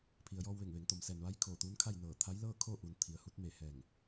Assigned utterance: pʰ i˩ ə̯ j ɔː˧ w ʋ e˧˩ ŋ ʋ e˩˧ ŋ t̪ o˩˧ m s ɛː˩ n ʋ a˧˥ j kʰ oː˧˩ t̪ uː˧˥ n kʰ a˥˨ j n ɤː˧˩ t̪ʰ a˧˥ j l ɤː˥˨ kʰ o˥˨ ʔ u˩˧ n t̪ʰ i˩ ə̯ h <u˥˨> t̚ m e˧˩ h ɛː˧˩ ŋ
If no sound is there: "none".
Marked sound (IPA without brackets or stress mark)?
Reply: u˧